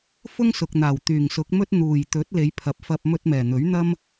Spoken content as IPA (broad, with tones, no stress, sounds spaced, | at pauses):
f ʊ˥ ŋ s ʊ˨ k̚ n̪ aː˨˩ w t̪ yː˨˩ ŋ s ʊ˨˥ k̚ m ɵ˥ t̚ n̪ uː˨˩ j t̪ ɵ˨˥ t̚ l e˨˧ j pʰ ɐ˨˥ p̚ f ɐ˧ p̚ m ɵ˧ t̚ m ɛː˨˩ n̪ ɵ˨˥ ɥ n̪ ɐ˥ m